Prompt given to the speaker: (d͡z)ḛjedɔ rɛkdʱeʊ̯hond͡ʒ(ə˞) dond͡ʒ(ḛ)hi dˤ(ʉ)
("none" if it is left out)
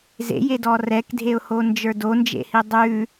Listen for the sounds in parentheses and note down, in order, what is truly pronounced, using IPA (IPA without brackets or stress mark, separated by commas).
z, ə˞, ḛ, ʉ